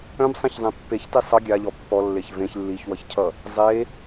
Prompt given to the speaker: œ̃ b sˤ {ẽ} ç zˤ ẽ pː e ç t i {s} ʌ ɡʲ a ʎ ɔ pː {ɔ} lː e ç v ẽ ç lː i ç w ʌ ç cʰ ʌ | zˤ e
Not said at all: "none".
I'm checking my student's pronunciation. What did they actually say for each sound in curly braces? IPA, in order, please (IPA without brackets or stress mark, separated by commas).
ẽ, sˤ, ɔ